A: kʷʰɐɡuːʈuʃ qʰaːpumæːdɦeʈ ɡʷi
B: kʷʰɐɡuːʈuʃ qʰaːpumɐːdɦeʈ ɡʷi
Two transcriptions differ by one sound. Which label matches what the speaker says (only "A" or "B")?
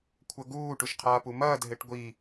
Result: B